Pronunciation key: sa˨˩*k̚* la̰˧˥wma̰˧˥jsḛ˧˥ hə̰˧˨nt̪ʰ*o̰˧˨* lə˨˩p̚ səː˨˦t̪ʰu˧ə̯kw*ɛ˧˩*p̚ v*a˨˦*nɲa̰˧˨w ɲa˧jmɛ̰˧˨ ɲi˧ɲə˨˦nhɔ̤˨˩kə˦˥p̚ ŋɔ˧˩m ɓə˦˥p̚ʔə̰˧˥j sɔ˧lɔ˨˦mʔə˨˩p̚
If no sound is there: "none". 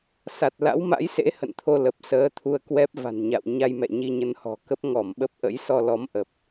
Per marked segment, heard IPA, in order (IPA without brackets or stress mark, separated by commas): t̚, o˧, ɛ˦˥, a̤˨˩